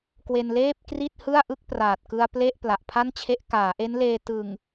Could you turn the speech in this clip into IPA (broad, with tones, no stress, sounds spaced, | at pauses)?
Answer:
k w e˧ n l eː˥˩ p̚ k r i˥˩ t̚ h ɯ˥˩ a̯ ʔ ɯ˥˩ k̚ p r aː˨˩ t̚ k ɯ˧ a̯ p l e˥˩ ʔ p l a˨˩ ʔ pʰ a˥˩ n t͡ɕʰ e˦˥ ʔ k aː˩˦ ʔ e˦˥ n l eː˧ t ɯ˨˩ ŋ